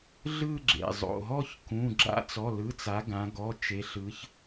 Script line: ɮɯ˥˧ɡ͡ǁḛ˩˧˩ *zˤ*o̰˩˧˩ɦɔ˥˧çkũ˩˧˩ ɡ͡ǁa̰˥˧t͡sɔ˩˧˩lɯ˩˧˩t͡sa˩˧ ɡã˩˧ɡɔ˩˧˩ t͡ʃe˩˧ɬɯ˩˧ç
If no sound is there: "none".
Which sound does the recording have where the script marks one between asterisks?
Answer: zˤ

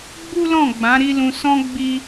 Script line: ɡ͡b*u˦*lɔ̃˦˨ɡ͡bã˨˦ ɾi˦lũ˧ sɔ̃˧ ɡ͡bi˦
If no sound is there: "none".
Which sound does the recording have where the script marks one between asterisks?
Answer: u˦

